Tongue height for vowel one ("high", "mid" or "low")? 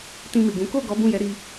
high